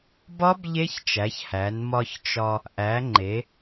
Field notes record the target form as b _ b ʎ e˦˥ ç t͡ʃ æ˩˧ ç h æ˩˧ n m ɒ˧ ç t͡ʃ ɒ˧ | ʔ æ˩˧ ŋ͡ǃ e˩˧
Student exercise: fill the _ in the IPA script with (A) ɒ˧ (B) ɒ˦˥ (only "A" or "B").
B